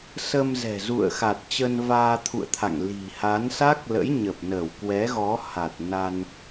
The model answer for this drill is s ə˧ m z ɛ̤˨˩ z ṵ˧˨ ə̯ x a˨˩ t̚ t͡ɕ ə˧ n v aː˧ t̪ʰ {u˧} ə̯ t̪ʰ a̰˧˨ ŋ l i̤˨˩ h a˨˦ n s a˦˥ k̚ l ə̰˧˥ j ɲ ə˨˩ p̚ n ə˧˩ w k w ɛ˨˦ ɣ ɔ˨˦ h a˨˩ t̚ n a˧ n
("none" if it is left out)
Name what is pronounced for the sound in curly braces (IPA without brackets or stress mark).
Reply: ṵ˧˨